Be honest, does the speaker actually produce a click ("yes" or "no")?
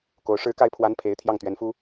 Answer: no